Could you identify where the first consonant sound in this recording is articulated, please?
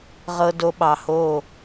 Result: uvular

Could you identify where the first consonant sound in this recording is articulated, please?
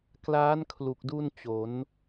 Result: velar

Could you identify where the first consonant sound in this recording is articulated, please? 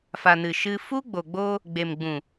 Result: labial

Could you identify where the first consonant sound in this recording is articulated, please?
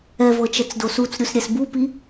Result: labial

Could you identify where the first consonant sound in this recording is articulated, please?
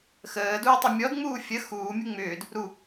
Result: velar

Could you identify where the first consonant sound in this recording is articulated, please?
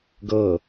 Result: velar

